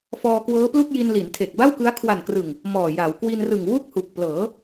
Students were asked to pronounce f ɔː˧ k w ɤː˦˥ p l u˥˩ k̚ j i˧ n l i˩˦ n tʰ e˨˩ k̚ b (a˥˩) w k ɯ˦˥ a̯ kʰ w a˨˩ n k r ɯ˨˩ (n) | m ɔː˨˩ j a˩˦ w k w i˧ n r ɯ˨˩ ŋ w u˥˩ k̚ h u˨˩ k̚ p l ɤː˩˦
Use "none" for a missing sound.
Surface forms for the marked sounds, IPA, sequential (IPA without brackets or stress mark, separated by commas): a˥˩, ŋ